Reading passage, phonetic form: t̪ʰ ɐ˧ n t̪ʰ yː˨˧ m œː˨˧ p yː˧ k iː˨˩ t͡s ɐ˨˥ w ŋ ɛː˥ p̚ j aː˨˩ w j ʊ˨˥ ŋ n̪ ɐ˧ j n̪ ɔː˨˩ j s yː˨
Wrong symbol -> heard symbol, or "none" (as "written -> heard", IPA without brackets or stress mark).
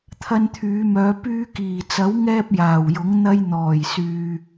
none